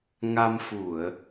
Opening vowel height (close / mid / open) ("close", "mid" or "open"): open